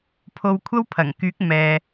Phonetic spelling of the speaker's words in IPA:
pʰ o˧ w kʷʰ ɐ˥ w pʰ ɐ˨˩ ŋ k yː˨˥ k̚ m ɛː˨

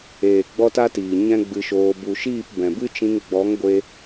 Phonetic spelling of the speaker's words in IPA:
eː˨ ɡ͡b ɔ˦ t a˦ t iː˨ ɲ ɛ̃˦ ɡ͡b ɨ˧ ʃ oː˧ b u˨ ʃ iː˦˨ p b ɛ̃˨ b ɨ˦ t͡ʃ ĩ˧ ŋ ɡ͡b ɔ˨˦ ŋ ɡʷ e˧

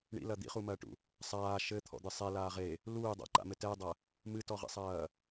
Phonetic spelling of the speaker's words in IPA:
ɳ ḭ l ɐ d̪ ḭ χ u m ɐː ʈ ṵ | sˤ aː ʃ ɘ t̪ʰ ɔ̰ d̪ ɨ sˤ ɛ l aː ʁ e | l uː dˤ a̰ ǃ a̰ m ɘ t ɛ dˤ ɐ | m ɨ t ɔ ʁ ḭ sˤ ɐː

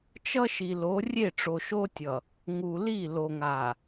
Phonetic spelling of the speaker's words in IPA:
t͡ʃ ʌ˦ ʃ i˨ l o˨˦ rʲ e˦˨ ʈ͡ʂ o˨ ʃ o˦ tʲ ʌ˨ | ŋ u˨ l i˦˨ l o˨ ŋ a˨

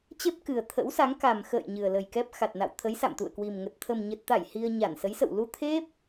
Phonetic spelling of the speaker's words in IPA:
t͡ɕ e˦˥ p̚ k ɨ˨˩ ə̯ t̪ʰ ə̰˧˥ w s a˨˦ ŋ k a˨˩ m x ə̰ː˧˨ j ɲ ɨ˨˩ ə̯ l ə˨˩ j k ɛ˦˥ p̚ x a˨˩ t̚ n a̰˧˨ w t̪ʰ ə˨˦ j s a̰˧˨ m t̪ ṵ˧˨ ə̯ k w i˨˩ m ŋ ə˨˩ t̚ t̪ʰ ə˨˩ m ɲ ə˨˩ t̚ t̪ a˧˩ j h i˧ ə̯ ɲ a˧˩ n s ə˨˦ j s ə̰˧˨ w l u˧ t̪ʰ e˦˥ p̚

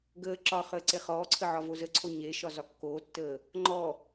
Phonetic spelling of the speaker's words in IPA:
ɡ əː ǁ ɒ χ əː ǀ e χ ɔː ǀʰ ə ʕ ɒ v o z ə ǀʰ o ɲ e ʃ ɒ z ɒ kː oː tː əː | ŋ͡ǃ ɔ

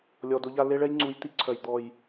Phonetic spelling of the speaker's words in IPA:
lʲ ɔ˨ d o˧ ʎ a˧ l e˦ ɭ ɛ˦ j ŋ͡ǀ u˨˦ j t̪ i˨ ǀʰ œ˨ j d̪ ɔ˨ j

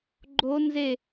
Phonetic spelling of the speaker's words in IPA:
ɡ͡ǃ o n z e

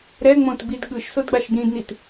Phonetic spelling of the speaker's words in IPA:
ɾ ɛ ŋ͡m õ t ɡ͡b i d ɠ ɯ ʃ s o d ɡ͡b a ʃ d ĩ d n i t

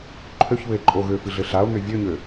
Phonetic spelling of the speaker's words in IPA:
ǃʰ ø ç β ɘ e̯ ǃʼ o ɣ ø f ɨ ɮ ɘ ɬ a o̯ n̪ ø vʲ ø ɲ ø

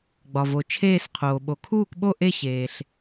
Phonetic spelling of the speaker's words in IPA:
ɡ͡b ɒ˩ v o˩ t͡ʃʰ eː˦˨ s qʰ oː˩ ɓ o˩ kʰ uː˦˨ k ɓ o˦˨ ʔ e˦˨ ɕ eː˩ ɬ

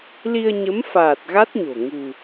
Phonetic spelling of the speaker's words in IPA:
l i˧ ə̯ ɲ ə˨˦ m f aː˨˩ t̚ ɣ a˦˥ t̚ ɲ o̤˨˩ ŋ ṳ˨˩

